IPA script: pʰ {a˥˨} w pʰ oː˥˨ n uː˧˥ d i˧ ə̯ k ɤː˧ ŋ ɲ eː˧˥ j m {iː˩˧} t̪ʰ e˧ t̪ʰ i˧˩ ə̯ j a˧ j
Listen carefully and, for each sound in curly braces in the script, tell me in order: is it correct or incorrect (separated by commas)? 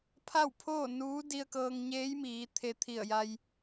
correct, correct